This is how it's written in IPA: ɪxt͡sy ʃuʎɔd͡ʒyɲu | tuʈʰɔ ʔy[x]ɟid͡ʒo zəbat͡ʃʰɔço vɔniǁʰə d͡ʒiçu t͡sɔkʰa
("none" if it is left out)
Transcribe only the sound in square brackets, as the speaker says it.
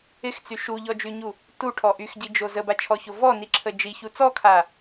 x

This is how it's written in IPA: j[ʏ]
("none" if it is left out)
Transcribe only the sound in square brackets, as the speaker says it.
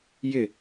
ɪ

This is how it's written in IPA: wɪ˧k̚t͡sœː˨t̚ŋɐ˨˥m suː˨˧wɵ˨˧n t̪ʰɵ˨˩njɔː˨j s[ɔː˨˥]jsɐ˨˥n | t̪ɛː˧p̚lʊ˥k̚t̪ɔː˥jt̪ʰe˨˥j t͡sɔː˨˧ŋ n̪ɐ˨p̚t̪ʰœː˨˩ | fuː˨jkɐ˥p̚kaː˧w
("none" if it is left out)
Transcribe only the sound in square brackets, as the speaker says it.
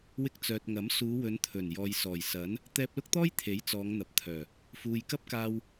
ɔː˨˩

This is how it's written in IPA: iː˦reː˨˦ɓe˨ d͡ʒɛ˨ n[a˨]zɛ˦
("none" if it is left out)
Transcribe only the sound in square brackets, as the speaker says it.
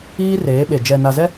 a˨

